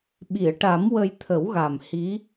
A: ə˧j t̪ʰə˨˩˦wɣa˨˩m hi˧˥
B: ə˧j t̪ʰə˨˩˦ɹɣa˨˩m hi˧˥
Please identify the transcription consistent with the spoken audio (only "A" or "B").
A